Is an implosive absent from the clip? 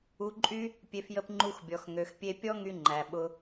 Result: no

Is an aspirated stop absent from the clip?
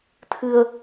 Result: no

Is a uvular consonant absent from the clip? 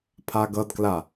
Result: yes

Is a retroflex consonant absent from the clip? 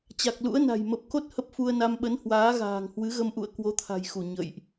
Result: yes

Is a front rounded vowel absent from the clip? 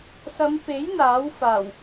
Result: yes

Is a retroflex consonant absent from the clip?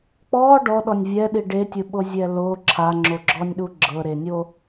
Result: no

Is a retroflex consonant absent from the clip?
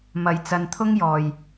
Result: yes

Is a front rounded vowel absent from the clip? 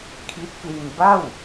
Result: yes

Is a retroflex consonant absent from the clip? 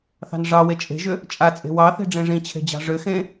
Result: no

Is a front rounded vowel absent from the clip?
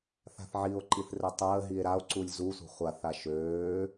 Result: no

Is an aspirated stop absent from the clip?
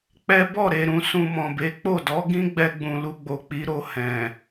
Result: yes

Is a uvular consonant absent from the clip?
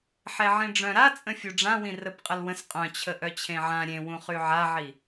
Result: no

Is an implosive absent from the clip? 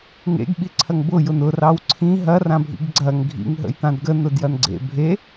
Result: no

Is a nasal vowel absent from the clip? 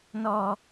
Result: yes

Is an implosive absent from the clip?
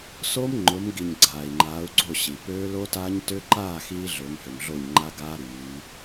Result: yes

